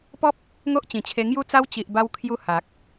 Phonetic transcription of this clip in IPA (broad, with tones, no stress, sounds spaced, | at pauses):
p ɔ˦ p̚ | ŋ o˦ ʔ t͡ɕ ĩ˨˩ t͡ɕʰ e˧ ŋ j u˦ t͡s a˦ w t͡ɕ i˨ ʔ b a˧ w kʰ j u˧ h a˨ k̚